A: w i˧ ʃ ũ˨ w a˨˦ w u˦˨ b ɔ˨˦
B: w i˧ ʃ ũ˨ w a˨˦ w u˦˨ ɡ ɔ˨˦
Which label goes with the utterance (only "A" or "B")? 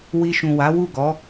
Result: B